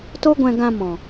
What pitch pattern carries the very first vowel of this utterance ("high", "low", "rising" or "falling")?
high